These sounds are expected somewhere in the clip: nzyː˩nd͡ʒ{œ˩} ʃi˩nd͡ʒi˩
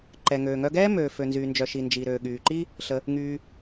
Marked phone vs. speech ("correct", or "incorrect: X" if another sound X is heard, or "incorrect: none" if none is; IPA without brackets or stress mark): correct